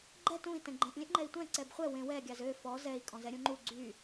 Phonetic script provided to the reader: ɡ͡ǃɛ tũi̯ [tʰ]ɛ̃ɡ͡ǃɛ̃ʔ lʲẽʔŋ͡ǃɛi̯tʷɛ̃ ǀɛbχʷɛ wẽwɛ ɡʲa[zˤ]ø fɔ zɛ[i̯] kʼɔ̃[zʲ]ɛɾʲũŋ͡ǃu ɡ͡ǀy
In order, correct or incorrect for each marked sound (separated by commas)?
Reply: incorrect, incorrect, correct, incorrect